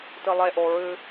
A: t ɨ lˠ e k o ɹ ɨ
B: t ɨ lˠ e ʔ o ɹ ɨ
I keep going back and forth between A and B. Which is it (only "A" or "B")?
B